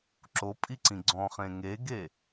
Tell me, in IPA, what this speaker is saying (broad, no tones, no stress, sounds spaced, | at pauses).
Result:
ǁ o pʼ i ǀ ĩ ɡ͡ǀ ɔ̃ χ ẽ ŋ e ɡ e